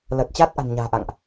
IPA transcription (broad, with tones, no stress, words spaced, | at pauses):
ləː˨˩t̚t͡ɕaː˦˥t̚ʔa̤˨˩nɲa̤ː˨˩ ʔa̰˧˨ŋʔ